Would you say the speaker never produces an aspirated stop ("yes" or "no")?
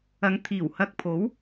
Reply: no